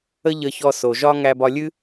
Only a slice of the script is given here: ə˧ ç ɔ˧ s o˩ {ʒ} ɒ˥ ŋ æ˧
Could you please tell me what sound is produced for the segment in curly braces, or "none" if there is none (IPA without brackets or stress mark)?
ʒ